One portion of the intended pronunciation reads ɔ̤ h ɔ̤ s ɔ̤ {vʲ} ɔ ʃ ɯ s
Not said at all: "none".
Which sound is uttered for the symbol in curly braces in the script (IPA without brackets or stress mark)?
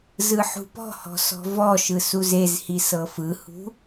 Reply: v